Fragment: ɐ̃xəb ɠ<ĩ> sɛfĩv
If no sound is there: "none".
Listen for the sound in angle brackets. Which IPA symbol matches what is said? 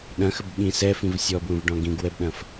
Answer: ĩ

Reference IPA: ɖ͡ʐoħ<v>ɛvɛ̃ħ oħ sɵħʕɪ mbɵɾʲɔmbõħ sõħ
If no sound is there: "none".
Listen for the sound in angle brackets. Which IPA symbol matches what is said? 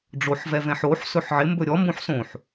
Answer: v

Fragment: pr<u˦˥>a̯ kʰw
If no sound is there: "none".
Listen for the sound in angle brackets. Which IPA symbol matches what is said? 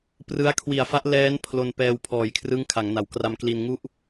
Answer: ɯ˦˥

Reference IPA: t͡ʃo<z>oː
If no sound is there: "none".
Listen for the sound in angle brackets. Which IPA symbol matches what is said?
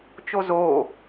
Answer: z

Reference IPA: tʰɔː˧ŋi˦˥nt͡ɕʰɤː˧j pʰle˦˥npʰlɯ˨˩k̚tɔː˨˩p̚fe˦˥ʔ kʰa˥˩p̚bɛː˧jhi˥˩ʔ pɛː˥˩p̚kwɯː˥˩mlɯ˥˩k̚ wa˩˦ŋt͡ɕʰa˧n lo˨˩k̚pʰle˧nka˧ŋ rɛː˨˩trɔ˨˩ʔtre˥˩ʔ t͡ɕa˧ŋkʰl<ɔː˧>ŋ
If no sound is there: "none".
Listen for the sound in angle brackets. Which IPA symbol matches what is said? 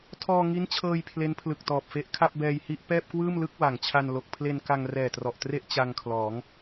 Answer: ɔː˩˦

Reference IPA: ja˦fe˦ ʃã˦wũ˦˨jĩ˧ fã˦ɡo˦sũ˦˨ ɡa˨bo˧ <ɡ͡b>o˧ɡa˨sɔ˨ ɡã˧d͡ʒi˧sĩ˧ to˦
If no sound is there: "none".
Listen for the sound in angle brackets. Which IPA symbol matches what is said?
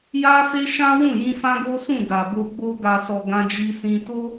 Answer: ɡ͡b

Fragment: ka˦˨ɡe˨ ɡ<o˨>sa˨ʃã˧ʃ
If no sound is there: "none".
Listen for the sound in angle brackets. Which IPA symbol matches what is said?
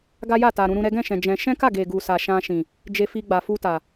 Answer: u˨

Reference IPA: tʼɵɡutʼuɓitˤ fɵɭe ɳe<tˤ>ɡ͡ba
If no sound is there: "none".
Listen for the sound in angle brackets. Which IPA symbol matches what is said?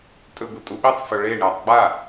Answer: tˤ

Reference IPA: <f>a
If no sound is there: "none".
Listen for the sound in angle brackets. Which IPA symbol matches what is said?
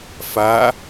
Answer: f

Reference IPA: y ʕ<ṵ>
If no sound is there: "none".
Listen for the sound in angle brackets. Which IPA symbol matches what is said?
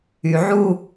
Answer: u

